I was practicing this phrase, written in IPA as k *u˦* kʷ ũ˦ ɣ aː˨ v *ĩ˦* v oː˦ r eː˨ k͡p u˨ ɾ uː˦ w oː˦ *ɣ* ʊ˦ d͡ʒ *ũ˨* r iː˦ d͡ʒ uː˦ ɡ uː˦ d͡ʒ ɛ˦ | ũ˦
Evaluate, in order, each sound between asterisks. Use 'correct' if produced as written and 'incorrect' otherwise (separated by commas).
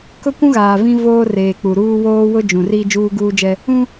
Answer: incorrect, correct, incorrect, correct